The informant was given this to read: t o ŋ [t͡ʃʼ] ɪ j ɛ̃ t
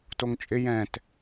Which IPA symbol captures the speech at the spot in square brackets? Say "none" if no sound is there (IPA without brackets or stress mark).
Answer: t͡ʃʼ